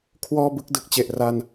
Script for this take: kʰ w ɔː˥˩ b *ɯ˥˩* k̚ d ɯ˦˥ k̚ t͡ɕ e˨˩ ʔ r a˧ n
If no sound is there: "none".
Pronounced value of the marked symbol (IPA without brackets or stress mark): ɯ˥˩